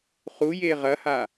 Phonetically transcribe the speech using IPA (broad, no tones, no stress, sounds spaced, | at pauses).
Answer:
χ u j e ʁ ɐ h a